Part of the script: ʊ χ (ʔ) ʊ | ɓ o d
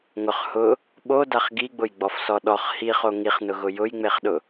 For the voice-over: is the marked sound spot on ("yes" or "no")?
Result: no